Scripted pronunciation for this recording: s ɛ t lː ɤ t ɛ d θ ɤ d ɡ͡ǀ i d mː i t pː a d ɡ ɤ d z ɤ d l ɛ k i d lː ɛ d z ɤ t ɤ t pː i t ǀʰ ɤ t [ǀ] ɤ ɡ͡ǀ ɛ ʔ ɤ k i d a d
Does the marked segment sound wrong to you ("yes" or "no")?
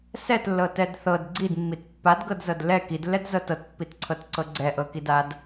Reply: no